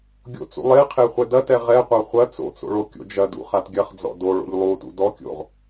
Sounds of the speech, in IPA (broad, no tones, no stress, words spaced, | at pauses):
ɡʲo̰t͡sṵlˠeqʰe χʷɛdɐtɛ ʁɛqʷa χʷɐ t͡so̰t͡so̰ ɭokʲo̰d͡ʒɐdṵ χatɡʲɐχd͡zɔ̰ doɭo̰ʎ lˠutṵ dɔkʲo̰ʁ